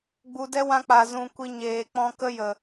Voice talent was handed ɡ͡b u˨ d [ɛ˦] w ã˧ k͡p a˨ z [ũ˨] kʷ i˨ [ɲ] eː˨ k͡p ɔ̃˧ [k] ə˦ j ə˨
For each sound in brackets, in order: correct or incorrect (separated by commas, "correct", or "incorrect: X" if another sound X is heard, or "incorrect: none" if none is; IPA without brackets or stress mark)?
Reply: correct, correct, correct, correct